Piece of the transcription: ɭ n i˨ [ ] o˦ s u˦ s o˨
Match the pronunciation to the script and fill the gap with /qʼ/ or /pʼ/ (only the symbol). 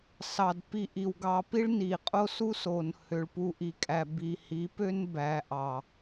qʼ